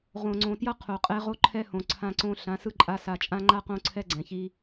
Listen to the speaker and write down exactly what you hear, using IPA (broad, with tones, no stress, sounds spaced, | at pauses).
ʁ õ˨ ŋ͡ǀ õ˨ t j ʌ˦ qʰ o˨ qʼ ɛ˦ ʁ o˦ ǃʰ ɛ˦ h õ˨ ǀʰ ã˦ ǀ õ˦ ɬ ã˨˦ s ɯ˦ ǃʼ a˦ s a˨ t͡ʃʼ ã˦ ŋ͡ǃ a˦ q õ˦ ǀʰ ɛ˦ ɡ͡ǀ ɛ̃˨ ç i˦